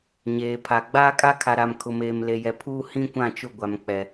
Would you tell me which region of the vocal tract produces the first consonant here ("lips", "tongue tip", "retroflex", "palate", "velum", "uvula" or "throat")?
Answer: palate